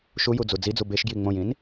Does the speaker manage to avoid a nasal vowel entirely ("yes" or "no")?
no